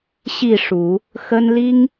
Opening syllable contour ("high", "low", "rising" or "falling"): falling